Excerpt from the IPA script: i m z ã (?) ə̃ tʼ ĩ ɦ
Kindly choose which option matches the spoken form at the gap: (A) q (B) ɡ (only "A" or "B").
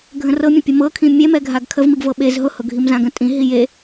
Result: B